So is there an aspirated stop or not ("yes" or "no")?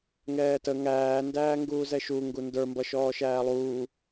no